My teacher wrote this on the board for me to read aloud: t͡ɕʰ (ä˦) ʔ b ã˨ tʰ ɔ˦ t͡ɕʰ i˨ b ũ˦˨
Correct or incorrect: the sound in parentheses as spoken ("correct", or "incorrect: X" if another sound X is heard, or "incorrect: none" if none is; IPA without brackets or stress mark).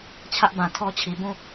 correct